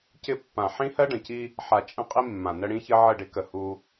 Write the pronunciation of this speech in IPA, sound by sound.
c ɪ˦ pː ã˨ ħ ĩ˦ h ɜ˦ ɖ ə̃˨ c i˦ | ħ a˨ t͡ʃʼ ə̃˦ qʼ i˦ mː ã˨ n ə˦ ɽ ĩ˦ ç ɘ˦ ʕ ə˦˨ ɖ ɪ˦ k ə˨ h u˦

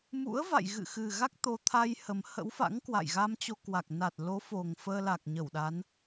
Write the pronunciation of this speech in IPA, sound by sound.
m ṵ˧˥ ə̯ v a̰˧˨ j ɣ ɨ̰˧˨ x ɨ˨˩ ɣ a˦˥ k̚ t̪ o˧ t̪ʰ a˧ j h ə˨˩ m h ə̰˧˥ w f a̰˧˥ ŋ k w a̰˧˨ j ɣ a˧ m t͡ɕ o˧ k w a˨˩ k̚ n a˨˩ t̚ l o˨˦ f o˨˩ ŋ f əː˧ l a˨˩ k̚ ɲ ə˧˩ w ɗ a˨˦ n

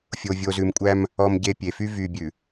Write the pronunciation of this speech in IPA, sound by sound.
fʲ o˨ vʲ o˨ z ʉ˨ m kʷʼ æ˦ m | ɔ˨ m ɟ e˨ pʲ e˨ f y˦ v y˨ bʲ ʉ˨

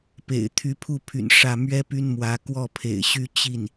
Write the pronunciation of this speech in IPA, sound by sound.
p ḛ˨˩ ɪ̯ t̪ʰ y˧˥ pʰ u˥˩ pʰ y̰˨˩ n ʂ ä˥˩ m ɥ ɛ˥ p y˥ n m w ä˧˥ k w ɔ˥˩ pʰ ḛ˨˩ ɪ̯ ɕ y˥˧ t͡ɕ i˥˩ n

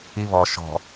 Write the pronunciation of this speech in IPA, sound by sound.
i β ɔ ʃ ɔ̤

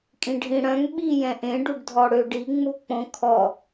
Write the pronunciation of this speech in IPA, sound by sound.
kʼ ĩ ɖʱ ĩ ɽ œ̃ ŋ ɓ i j ɛ̃ ʔ ẽ ɖ u ɖ dʱ ɔ ɽ ø ɖ i ŋ͡m u k͡p õ kʰ ɔ

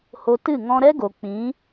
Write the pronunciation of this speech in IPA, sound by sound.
h o˧ t ɨ˦˨ ŋ ɔ̃˧ ɾ ɛ˦ ɡ o˨ k͡p ĩ˨˦

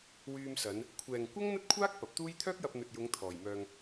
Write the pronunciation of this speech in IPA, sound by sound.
w yː˧ m s ɐ˨˧ n | kʷʰ ɛː˨ ŋ kʷ ɐ˥ ŋ n̪ ɐ˥ t̚ kʷʰ aː˥ k̚ p ɐ˨˥ p̚ t̪ uː˥ j t̪ʰ œː˥ k̚ j ɐ˧ p̚ n̪ ɵ˨ t̚ j ʊ˨˧ ŋ t̪ʰ ɔː˨ j m œː˧ ŋ

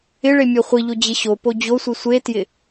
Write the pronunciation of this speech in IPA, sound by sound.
ɪ ɭ e mʲ ɔ χʷ i ʎ o d͡ʑ ɪ ɕ o p o d͡ʑ o sʷ i sʷ e t j ɪ

